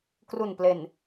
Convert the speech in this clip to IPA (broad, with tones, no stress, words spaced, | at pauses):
kru˨˩nple˨˩n